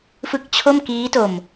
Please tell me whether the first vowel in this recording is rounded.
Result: no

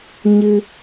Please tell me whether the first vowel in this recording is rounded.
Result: no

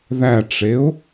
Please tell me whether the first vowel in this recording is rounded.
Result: no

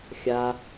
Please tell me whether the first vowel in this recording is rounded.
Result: no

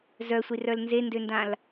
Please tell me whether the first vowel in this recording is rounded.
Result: yes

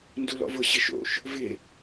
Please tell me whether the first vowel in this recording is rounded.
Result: yes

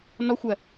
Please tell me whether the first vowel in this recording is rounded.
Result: yes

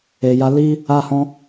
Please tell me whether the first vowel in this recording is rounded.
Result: no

